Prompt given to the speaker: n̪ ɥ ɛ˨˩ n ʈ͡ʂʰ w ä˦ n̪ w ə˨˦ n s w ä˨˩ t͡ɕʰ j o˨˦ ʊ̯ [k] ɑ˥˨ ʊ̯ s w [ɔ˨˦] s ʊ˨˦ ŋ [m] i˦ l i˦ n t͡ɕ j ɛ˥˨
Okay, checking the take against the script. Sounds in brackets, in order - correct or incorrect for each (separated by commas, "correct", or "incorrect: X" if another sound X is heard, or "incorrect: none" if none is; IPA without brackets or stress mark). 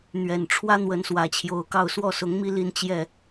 correct, incorrect: ɔ˥˨, correct